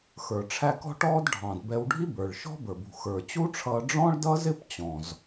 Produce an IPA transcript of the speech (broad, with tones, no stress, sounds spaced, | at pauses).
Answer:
x ə˞˩ ʈ͡ʂʰ æ˧ k ɔ̤˥ ʈ ɔː˥ d ɖʱ ɑ̃˩ d b ɛ˧ w ɖʱ i˥ b ə˞˩ ɭ ʃ ɔ̤˥ b ə˞˩ b ṳ˩ x ə˞˩ t͡ɕ u˥ ʈ͡ʂʰ ʌː˧ ɖ͡ʐ ɔ̃˥ ɭ d ʌ˥ z ɪ˥ p t͡ɕ ɔ̃˩ z